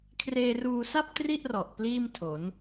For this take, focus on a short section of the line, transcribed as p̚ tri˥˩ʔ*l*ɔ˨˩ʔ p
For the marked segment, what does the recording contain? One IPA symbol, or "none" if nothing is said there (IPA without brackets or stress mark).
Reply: r